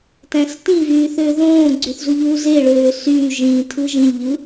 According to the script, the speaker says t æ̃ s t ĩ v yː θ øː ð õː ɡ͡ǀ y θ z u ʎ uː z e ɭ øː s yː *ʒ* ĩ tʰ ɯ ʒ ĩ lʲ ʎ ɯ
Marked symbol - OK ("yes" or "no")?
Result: yes